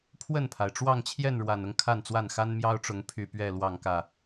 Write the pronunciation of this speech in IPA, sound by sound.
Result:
pʰ w ə˥˨ n pʰ a˩ ɪ̯ ʈ͡ʂ w ɑ˥˨ ŋ t͡ɕʰ j ɛ˥˨ n ɻ w a˨˩ n ʊ˦ ŋ kʰ a˥˨ n t͡s w a˥˨ n x a˦ n m j ɑ˦ ʊ̯ ʈ͡ʂ ʊ˨˦ ŋ pʰ y˨˩ p ɥ ɛ˥˨ l w ɑ˥˨ ŋ k ä˥˨

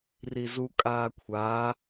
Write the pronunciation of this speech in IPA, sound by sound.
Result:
r i z u kʼ aː kʷʰ aː

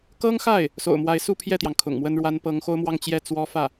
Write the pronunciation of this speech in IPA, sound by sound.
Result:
k ɤ˥ ŋ x a˥˩ ɪ̯ | s o̰˨˩ ʊ̯ m w a˧˥ ɪ̯ s u˥˧ pʰ j ɛ˥˩ t̪ j ɑ˩ ŋ kʰ ʊ̰˨˩ ŋ m w ə˥ n ɻ w a˥ n p ɤ˧˥ ŋ x o˥ ʊ̯ m w ɑ˥˧ ŋ t͡ɕ j ɛ˥˩ t͡s w ɔ˥ f ä˥˩

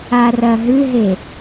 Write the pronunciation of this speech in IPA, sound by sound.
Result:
a r ɐ ɦ ɨ ɦ e

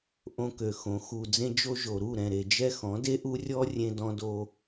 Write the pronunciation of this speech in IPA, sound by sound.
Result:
ʔ õ˧ k ø˨ x õ˨˦ x u˨ d͡z ẽ˦ d͡ʒ o˦ ʒ o˨ ɾ u˦˨ ɾ ɛ̃˨ ɾ e˨ d͡ʒ ɛ˦ x ɔ̃˨˦ d e˦ ʔ u˦ rʲ ɔ˦ rʲ ẽ˦ d ɔ̃˦ d o˦

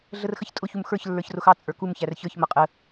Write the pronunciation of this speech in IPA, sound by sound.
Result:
ɮ ə r x ə ç tʼ ʊ ç u m x ə˞ ç lː ə˞ ç r ʊ x ɑ t͡sʼ ə˞ k u m ç æ r ç ə˞ ç m ʌ qʼ ə

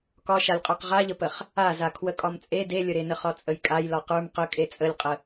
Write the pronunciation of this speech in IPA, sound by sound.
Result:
k ɒ ʃ a lʲ qʼ ə˞ q ʁ a ʎ ə p ə χ | a z a kʰ w ə kʼ ɒ m t͡sʼ e d e lʲ ə ɾ e n ə χ ɒ t͡sʼ ə j kʼ a j l ɒ q ə˞ m q ə kʼ e t͡sʼ ə lʲ qʼ ə

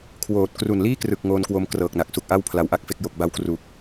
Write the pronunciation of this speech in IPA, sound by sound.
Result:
kʰ w oː˨˩ t̚ k r u˨˩ n l iː˥˩ k r ɯ˨˩ k̚ ŋ oː˧ n k w o˧ m k r ɤː˨˩ k̚ n a˨˩ k̚ s u˨˩ k̚ ʔ a˥˩ w pʰ l a˧ w ʔ a˥˩ k̚ f e˥˩ k̚ j o˨˩ k̚ b a˦˥ w k r u˨˩ k̚

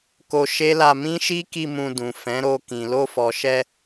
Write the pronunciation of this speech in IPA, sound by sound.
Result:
k o˧ ʃ e˦ l a˧ m ĩ˦ ʃ i˦ k i˧ m ũ˧ d ũ˨ f ɛ̃˨˦ ɾ o˧ k ĩ˨ l o˧ f ɔ˨ ʃ ɛ˧

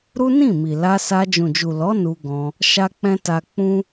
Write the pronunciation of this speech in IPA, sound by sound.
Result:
ɾ u˦ n ĩ˦˨ m i˨ l a˧ s a˧ d͡ʒ ũ˨ d͡ʒ u˨ l ɔ˨˦ n u˧ ɡ ɔ̃˧ | ʃ a˦ k͡p ɛ̃˦ t a˦ k͡p ũ˦

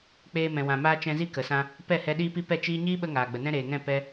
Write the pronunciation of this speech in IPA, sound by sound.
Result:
k͡p eː˧ m ɛ̃˨ w ã˨ m aː˧ t͡ʃ ɛ̃˧ z i˦ k ə˨ s ã˧ | p ɛ˦˨ h ɛ˧ ɗ iː˦ p i˦ p ɛ˦˨ t͡ʃ iː˦ ɲ iː˦ ɓ ə˧ ŋ aː˨ ɡ͡b ə˨ n ɛ̃˦ ɾ eː˨ ŋ ɛ̃˦˨ p ɛ˧

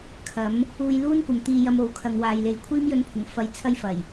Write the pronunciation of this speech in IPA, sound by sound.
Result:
kʰ ɐ˨˥ m | uː˧ j l uː˥ n kʷ ɐ˨ m t̪ iː˧ j ɐ˧ m o˨˧ w kʰ ɐ˨ ŋ w aː˨ j l e˨ j kʷʰ iː˥ m j ɵ˧ n pʰ ʊ˨˩ ŋ f ɐ˧ j t͡sʰ ɐ˥ j f ɐ˨˩ j

